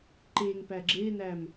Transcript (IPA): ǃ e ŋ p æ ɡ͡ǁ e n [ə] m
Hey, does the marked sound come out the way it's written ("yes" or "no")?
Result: no